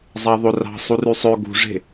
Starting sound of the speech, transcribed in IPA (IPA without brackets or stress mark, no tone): zˤ